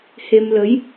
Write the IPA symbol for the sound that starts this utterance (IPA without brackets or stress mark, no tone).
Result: h